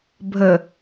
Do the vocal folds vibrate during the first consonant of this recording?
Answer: yes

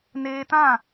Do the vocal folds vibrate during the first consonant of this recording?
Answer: yes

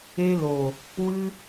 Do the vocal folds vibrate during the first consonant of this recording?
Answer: yes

